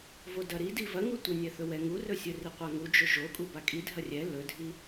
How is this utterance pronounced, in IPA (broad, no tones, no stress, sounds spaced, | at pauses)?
v o d ɐ ɾ i d i v ɐ ŋ u tʷ ɐ nʲ ɛ θ ɵ w ɛ ŋ u r ɵ sʲ ɵ r i qʷ a ŋ u d͡ʒ ɵ ʒ o kʼ u b a kʼ i dʱ ɐ rʲ ɛ l ɵ dʱ i